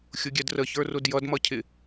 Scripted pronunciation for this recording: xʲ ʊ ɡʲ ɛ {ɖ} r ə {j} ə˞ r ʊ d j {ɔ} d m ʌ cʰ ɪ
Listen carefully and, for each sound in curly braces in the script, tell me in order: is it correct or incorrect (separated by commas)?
incorrect, incorrect, incorrect